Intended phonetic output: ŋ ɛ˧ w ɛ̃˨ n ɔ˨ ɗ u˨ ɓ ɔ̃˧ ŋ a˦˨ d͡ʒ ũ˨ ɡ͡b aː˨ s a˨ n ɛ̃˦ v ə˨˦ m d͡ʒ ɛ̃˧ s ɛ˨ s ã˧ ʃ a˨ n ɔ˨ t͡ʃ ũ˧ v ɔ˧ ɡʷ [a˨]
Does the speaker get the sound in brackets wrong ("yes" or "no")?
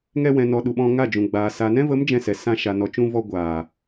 yes